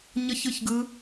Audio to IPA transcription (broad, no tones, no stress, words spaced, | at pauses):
ɲʌçɯçɡɯ